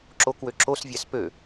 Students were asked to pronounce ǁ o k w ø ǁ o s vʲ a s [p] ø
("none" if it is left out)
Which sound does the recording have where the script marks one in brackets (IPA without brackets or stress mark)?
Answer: p